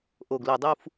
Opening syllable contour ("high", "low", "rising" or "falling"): low